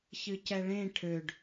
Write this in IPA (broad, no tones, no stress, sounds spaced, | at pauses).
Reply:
ç ɨ c ɛ ɭ ẽ ʈʰ ø ɖ